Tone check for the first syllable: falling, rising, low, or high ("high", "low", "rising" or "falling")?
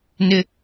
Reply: high